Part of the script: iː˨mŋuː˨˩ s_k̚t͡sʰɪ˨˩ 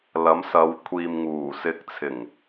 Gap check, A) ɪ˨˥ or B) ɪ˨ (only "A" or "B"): B